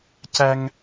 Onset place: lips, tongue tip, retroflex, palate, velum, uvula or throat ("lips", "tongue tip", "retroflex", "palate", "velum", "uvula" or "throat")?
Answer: palate